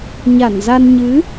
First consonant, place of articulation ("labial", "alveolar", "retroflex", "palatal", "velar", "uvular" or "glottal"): palatal